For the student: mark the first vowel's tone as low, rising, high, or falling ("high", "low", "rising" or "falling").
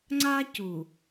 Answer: high